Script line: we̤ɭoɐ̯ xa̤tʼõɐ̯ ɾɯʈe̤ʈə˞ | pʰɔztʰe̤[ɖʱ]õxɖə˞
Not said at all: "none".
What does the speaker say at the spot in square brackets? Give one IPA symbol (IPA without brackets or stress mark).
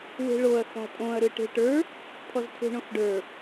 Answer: ɳ